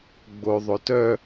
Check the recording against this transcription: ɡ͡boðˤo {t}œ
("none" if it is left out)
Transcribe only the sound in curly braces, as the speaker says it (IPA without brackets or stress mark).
t